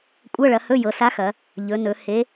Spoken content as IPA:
kʷʼɤ˧˥˧ɭɐ˩˧hɵ˧˥˧ jɤ˩˧sa˧˥xɐ˩˧ | ʎɵ˩˧nɵ˩˧ he˧˥

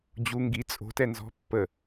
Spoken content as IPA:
d͡ʑu ŋɡi t͡sʼo̤tɛ nzɔ̤pːə

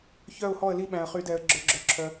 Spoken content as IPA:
çœ˥˨ʊ̯hɔ˥˨ə̯li˦ ɓæ̃˨ə̯χy˨˩˦dɛ˨ə̯ɡ͡ǁœ˨ ɡ͡ǁœ˨ǁʰœ˨

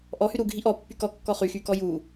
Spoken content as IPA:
ʔɔhy ɾuɡʱi ʔɔpːy kɔkːɔ χyxykɔ ju

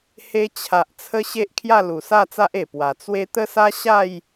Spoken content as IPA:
he˧t͡ɕʰa˨ʔ t͡sʰə˦ɕe˦ʔ kʰja˥˧lu˨˩sa˥˧t͡sa˦ʔ e˨˩pwa˨˩ t͡swe˦ t̪ə˦sa˦ɕa˥˧j

